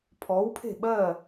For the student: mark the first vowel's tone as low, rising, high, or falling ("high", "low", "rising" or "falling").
rising